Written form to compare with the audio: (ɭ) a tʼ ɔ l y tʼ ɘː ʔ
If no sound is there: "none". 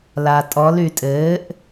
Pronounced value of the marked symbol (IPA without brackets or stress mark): l